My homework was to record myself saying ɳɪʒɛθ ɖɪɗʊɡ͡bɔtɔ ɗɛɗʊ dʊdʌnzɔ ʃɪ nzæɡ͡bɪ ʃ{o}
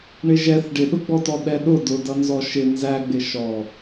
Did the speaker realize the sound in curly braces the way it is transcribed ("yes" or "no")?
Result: no